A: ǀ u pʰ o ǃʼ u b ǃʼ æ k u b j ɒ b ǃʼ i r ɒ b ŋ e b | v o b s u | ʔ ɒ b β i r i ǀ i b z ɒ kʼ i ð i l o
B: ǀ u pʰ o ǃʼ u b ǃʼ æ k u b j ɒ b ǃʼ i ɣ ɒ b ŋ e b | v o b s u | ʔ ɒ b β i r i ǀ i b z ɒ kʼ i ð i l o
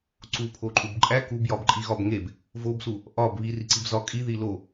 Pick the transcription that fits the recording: B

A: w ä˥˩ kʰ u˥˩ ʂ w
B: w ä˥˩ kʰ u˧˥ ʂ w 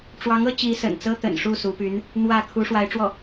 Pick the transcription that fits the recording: B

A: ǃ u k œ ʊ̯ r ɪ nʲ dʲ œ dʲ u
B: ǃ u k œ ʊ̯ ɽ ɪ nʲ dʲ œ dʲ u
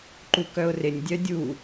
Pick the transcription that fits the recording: A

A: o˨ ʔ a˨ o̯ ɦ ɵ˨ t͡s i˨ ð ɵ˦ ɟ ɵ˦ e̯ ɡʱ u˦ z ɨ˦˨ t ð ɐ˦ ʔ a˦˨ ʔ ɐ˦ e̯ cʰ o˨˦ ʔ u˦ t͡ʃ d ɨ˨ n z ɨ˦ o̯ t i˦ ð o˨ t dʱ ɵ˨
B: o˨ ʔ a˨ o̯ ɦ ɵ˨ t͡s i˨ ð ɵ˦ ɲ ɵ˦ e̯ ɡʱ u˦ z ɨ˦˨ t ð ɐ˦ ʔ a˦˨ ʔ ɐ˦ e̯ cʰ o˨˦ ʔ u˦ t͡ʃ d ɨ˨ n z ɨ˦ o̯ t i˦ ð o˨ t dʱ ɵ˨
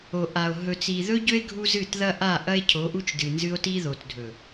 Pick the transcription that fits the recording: A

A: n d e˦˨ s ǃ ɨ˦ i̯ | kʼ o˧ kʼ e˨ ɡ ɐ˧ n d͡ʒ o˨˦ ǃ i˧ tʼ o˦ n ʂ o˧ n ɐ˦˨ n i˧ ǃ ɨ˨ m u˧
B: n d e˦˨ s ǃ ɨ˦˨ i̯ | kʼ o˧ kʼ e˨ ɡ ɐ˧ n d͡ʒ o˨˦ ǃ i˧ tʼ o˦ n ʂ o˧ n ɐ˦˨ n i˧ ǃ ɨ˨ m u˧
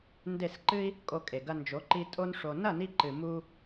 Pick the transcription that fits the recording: A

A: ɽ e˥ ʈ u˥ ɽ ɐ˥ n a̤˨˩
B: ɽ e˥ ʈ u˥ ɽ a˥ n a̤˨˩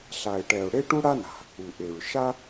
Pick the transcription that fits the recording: B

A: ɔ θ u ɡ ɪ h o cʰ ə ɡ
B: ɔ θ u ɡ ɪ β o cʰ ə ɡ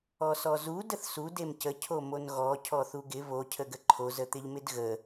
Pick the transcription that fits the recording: B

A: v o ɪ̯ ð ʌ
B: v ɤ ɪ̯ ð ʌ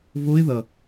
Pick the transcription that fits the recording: A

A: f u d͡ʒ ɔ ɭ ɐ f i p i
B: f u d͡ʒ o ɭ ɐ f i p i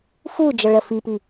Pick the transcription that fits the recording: A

